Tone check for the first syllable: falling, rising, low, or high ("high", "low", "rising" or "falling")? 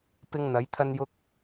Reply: high